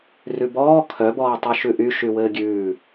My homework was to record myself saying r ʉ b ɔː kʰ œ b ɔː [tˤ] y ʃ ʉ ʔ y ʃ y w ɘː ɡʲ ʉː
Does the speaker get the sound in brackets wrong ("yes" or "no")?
no